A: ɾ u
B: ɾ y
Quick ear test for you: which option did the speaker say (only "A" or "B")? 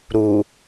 A